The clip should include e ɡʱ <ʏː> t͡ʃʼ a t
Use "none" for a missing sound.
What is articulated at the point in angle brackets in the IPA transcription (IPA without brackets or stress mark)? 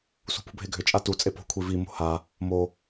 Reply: ʏ